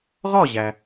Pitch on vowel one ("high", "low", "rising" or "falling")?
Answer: falling